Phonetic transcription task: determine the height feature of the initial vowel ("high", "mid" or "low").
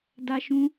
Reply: low